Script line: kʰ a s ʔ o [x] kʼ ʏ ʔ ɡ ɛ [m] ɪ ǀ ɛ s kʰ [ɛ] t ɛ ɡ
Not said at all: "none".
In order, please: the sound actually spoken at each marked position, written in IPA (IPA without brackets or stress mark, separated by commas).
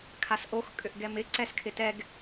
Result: x, m, ɪ